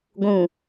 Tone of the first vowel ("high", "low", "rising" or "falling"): low